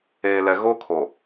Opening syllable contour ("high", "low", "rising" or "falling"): low